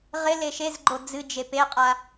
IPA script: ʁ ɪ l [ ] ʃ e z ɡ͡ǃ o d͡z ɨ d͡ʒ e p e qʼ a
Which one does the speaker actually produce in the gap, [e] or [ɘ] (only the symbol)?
e